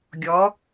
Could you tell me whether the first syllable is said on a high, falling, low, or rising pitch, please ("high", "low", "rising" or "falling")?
rising